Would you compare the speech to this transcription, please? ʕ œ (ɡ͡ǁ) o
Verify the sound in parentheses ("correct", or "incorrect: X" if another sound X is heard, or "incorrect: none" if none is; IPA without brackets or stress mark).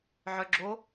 correct